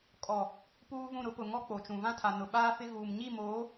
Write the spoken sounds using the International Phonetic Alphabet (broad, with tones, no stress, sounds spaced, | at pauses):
kʼ ɔ˨ | p uː˦ v ũ˦˨ ɾ ʊ˦ p ʊ˨ ŋ ɔ˦ k͡p o˨ t͡ʃ ũ˨ v ã˦ tʰ a˨ n ʊ˨ ɓ aː˦ f ɪ˦ ɣ uː˨ m ɲ i˦˨ m oː˨˦